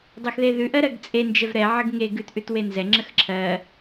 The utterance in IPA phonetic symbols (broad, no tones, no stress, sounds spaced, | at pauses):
dˤ ɜ x ð e ð ʉ ʔ ɜ ɾ ɜ ɡ t͡sʼ e n d͡ʒ ɛ v ɾ ɛ ʕ ə ɡ ŋ e ɡ ʉ t ʔ ʉ t w e n z ɛ ŋ͡ǁ ə x ǁʰ ɜ